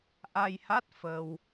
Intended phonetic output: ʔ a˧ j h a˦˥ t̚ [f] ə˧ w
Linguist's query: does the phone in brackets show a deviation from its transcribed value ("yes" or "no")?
no